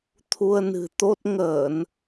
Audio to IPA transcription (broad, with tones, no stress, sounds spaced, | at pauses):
t̪ʰ u˧ ə̯ n ɨ̤˨˩ t̪ o˦˥ t̚ ŋ əː˧˩˨ n